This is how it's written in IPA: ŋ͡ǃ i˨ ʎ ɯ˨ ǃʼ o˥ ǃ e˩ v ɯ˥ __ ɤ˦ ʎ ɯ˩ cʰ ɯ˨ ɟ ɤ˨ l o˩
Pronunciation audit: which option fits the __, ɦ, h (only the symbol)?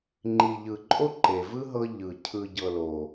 ɦ